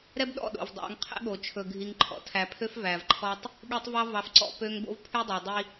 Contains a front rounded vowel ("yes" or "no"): yes